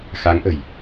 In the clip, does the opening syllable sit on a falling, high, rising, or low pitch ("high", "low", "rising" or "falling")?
rising